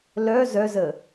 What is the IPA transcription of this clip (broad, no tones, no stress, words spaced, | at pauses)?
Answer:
lœ zœzə